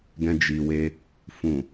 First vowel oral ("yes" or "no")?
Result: no